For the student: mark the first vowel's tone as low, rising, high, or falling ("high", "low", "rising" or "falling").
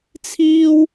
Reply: high